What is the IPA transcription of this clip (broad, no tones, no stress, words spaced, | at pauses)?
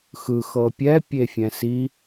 xɯxɤ pʲɛpʲefʲɛ̃ si